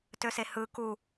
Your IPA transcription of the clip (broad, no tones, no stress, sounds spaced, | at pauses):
t ø s e h ɯ k u